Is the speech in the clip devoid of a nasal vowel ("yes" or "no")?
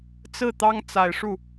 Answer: yes